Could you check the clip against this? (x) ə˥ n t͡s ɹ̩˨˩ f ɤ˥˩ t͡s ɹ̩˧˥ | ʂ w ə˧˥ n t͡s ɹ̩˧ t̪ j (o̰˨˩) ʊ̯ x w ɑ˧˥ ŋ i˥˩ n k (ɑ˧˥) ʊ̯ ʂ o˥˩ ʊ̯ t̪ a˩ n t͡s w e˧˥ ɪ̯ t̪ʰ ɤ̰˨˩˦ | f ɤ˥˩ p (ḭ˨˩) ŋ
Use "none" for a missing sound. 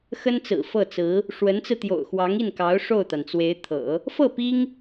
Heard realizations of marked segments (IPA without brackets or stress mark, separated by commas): x, o̰˨˩, ɑ˧˥, i˥